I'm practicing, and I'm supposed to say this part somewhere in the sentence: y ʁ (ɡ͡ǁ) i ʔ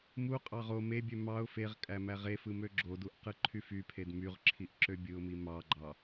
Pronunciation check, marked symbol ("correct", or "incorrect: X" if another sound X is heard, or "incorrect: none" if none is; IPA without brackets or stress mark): incorrect: ǁʰ